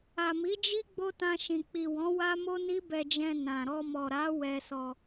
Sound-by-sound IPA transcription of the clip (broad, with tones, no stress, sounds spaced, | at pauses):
a˨ m i˨˦ d͡ʒ i˦ ɡ͡b o˦ t ã˧ ʃ ĩ˨ k͡p i˨ w ɔ̃˨˦ w a˦ m o˦ n i˦ b ɛ˧ d͡ʒ ɛ̃˧ n ã˨ ɾ ɔ˧ m ɔ˨ ɾ a˨˦ w ɛ˧ s ɔ˧